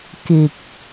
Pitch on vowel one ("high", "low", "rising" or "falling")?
low